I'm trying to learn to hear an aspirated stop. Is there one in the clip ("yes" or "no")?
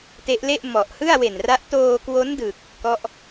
no